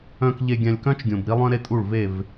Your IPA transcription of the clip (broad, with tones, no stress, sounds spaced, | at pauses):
œ̃˨ k ʎ e˨ ɡʲ ã˨ lʲ k œ̃˦ t͡ʃ ɡʲ õ˨ b ɾ i˦ lˠ œ̃˦ ɾ e˦ tʼ u˦˨ ɭ v e˦˨ v